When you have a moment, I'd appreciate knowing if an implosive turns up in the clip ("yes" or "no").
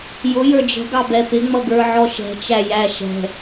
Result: no